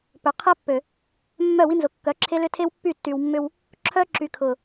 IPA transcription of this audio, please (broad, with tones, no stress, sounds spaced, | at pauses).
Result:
p ø˨ qʰ ɛ˦ pː ø˨ | mː œ˦˨ w i˦ n z ʊ˨ kː œ˨˦ ǁʰ e˦ l ʏ˦ tʰ e˦ w pː y˦˨ tː y˨ w mː ʏ˦ w | ǁʰ œ˦ ǁ y˨ kʰ ʊ˨